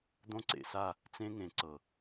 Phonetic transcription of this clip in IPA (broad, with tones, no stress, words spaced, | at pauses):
d̪õ˦ǀḛ˨sa˦˨ | t͡sẽ˦ŋẽ˨ǀɤ˨